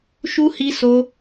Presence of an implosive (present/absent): absent